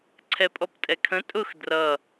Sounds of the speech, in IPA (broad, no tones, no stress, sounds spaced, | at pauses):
ǀʰ ɛ pʼ ɔ p tʼ ɛ kʰ ə̃ tʼ ʊ x d r ʌ